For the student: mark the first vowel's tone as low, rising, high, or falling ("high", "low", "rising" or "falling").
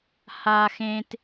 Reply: high